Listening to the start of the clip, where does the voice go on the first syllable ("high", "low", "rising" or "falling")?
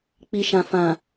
low